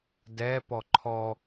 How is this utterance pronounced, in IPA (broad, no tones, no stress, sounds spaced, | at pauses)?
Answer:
d ɛ p ɔ ǃʰ ɔ